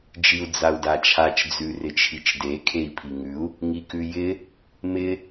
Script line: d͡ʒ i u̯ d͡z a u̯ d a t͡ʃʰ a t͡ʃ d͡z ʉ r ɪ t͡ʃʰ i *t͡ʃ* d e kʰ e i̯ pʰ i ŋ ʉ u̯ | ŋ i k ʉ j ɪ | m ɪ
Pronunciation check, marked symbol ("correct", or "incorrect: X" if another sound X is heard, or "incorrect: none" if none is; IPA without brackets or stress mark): correct